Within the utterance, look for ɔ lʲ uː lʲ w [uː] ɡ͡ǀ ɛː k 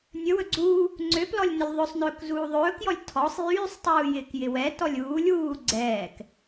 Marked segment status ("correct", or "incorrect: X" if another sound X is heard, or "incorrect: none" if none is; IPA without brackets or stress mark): correct